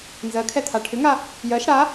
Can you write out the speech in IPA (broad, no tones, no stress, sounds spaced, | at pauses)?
n z ɜ kʰ ɛ t̪ʰ a ʈʰ ʏ ŋ a | j ɜ ʃ ɽ a